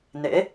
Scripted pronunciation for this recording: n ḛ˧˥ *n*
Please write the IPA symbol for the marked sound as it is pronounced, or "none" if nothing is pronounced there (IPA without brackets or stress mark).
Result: none